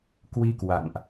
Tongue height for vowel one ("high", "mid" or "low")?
high